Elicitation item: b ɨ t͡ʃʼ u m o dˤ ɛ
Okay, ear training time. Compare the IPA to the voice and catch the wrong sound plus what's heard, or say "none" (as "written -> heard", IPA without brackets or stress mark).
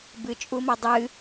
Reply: ɛ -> ɨ